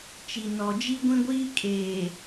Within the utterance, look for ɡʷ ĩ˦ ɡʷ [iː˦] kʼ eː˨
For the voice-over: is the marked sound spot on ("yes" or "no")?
yes